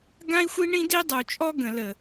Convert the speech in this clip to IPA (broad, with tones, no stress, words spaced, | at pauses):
ɡã˦i̯xʷi˦ɳĩ˦di˦ dˤu˨t͡ʃʼɔ˦ɡə̃˨lə˨